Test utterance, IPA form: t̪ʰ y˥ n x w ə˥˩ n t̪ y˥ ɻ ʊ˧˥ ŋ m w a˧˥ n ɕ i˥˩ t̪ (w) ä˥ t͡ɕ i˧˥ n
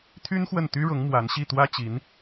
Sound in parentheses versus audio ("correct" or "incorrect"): correct